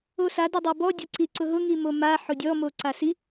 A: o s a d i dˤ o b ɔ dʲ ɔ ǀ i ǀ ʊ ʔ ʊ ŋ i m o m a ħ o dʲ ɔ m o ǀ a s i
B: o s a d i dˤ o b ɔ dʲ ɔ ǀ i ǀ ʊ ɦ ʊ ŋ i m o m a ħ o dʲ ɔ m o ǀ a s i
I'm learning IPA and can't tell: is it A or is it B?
B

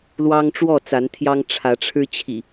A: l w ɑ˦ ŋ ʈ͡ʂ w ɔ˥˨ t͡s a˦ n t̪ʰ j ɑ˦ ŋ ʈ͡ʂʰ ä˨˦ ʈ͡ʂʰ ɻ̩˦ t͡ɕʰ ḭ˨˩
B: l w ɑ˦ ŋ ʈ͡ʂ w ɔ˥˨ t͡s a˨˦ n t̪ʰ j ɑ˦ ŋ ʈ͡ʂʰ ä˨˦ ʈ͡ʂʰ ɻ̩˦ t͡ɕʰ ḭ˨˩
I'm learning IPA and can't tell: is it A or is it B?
B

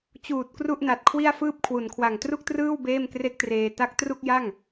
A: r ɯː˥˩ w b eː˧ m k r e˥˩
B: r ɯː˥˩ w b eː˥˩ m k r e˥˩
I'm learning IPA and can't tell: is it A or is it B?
B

